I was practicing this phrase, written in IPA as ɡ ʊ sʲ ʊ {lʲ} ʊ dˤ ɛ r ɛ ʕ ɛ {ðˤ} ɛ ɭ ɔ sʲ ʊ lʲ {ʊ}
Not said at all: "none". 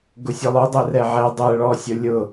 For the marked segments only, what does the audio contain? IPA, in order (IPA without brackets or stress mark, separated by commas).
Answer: lˠ, dˤ, ʊ